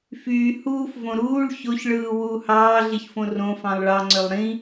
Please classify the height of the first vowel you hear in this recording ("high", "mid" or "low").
high